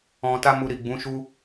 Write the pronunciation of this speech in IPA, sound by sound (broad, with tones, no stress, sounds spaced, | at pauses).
ɔ̃˧ t a˦ m u˧ ɾ i˨ ɡ͡b ũ˨˦ ʃ u˦